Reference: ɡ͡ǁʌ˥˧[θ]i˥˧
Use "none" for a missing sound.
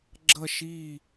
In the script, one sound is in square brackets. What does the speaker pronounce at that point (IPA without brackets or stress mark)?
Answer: ʃ